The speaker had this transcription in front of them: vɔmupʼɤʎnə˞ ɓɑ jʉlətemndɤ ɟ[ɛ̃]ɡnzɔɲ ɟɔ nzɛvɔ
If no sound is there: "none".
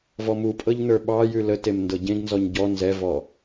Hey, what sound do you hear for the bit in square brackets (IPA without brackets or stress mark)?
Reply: ẽ